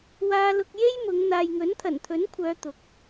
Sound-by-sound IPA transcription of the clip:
w aː˧ l ʊ˧ k̚ j e˥ j m ʊ˨˧ ŋ n̪ aː˨ j ŋ ɵ˨˥ n t̪ʰ ɐ˨˩ n t̪ʰ ɵ˨˥ n kʷʰ œː˨˧ t̪ ʊ˨˥ k̚

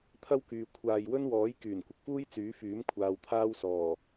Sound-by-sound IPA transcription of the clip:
t̪ʰ ɐ˥ w k yː˨ kʷʰ aː˨ j w ɵ˥ n w ɔː˨˥ j k yː˨˩ n kʷ ɪ˨ k̚ f uː˥ j t͡s yː˨˥ f yː˨˥ m kʷʰ aː˨ w t̪ʰ aː˥ w s ɔː˨˩

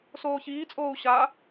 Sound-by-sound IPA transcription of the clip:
s oː ç iː t͡sʼ oː u̯ ɕ a

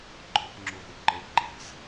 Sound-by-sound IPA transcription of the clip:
ɡ͡ǃ ɔ p ŋ͡ǁ u ɾ ɛ̤ y̯ ǃ e ǃ ɛ̤ z

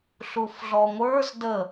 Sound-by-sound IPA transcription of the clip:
ɬ u f ɮ ɔ ŋʷ ə˞ z d ə

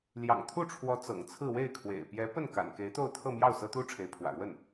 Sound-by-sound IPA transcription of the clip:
l j ɑ̰˨˩ ŋ t̪ʰ u˥˩ ʈ͡ʂʰ w ɔ˧˥ t͡s ɤ̰˨˩ ŋ t͡sʰ ɹ̩˥˧ w e˥˩ ɪ̯ kʰ w ḛ˨˩ ɪ̯ p j ɛ˧˥ p ə˥˩ n k a̰˨˩ n k e˧˥ ɪ̯ t̪ o˥˧ ʊ̯ t̪ʰ ɤ˥˧ m j ɑ˥˩ ʊ̯ s ɤ˥ t̪ u˥ ʈ͡ʂʰ e˧˥ ɪ̯ pʰ w ä̰˨˩ ɻ w ə˥˩ n

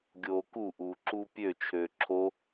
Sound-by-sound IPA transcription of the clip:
ɡʲ oː k u ʔ uː ǁ u pʲ ø t͡ʃʰ øː ǁʰ o

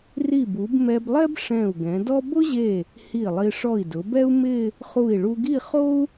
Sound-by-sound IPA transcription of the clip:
r i˧˩ b u˩˧ b m ɛ˧ b lˠ ɛ˥ b ʂ ɛ̃˧˩ u̯ ɡ ɛ̃˩˧ d ɔ˥ b ʊ˥ ʑ e˧˩ | h i˧˩ lˠ i˧ ʂ ɔ˧˩ i̯ d ʊ˩˧ b ɛ˥ u̯ m ɪ˥˧ | χ u˧˩ i̯ ɭ u˧ ɡ i˥˧ χ o˥ u̯

